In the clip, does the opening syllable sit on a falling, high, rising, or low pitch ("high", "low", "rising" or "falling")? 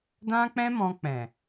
high